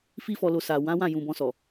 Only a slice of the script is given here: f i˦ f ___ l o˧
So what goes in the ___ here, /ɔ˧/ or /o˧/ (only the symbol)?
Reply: ɔ˧